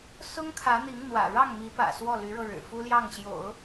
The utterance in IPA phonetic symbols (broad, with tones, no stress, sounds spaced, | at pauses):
s ʊ˥ ŋ kʰ ä˧˥ n̪ i˧˥ ŋ n̪ w ä̰˨˩ ɻ ɑ˥˩ ŋ m i˧˥ p ä̰˨˩ s w ɔ˥˩ l y˧˥ ɻ ɤ˧ ɻ ɻ̩˨˩ f u˥ l j ɑ˥˩ ŋ ɕ j o̰˨˩˦ ʊ̯